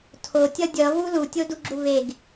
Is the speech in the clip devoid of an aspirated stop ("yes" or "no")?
no